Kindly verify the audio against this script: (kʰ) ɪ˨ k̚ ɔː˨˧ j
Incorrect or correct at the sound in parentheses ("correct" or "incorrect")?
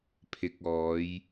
incorrect